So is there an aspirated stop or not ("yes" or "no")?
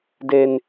no